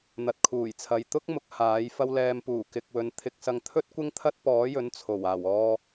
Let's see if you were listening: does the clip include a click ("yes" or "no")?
no